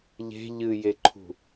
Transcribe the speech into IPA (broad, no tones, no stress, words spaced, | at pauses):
ʎe̤ ʎɨjeǃʰṳ